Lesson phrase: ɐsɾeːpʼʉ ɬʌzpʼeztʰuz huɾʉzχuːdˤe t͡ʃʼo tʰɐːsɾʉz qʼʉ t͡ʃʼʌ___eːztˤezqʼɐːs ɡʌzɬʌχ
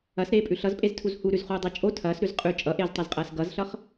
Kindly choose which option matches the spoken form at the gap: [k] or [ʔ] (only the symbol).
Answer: ʔ